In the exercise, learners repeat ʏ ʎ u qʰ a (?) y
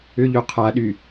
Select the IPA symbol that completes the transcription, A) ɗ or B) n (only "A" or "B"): A